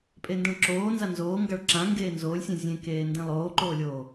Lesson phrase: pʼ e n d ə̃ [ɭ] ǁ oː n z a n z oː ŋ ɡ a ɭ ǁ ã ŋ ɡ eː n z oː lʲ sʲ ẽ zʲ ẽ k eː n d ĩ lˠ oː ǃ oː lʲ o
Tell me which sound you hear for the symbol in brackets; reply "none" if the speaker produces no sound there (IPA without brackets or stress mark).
ɭ